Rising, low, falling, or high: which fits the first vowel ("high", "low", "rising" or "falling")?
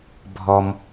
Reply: high